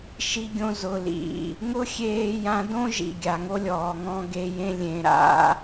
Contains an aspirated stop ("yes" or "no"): no